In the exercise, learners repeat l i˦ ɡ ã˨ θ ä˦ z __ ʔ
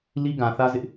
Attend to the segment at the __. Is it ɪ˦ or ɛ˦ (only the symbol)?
ɪ˦